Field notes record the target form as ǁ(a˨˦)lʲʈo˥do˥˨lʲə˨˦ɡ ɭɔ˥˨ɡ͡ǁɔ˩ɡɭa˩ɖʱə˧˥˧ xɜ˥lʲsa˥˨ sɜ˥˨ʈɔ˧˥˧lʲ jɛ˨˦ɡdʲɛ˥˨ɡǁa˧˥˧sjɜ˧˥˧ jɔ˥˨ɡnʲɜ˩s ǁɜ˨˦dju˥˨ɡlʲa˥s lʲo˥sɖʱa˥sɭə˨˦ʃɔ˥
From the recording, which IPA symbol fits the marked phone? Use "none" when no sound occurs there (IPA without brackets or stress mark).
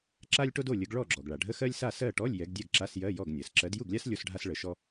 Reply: a˥